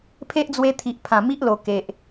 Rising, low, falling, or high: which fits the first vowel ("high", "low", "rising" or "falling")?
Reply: high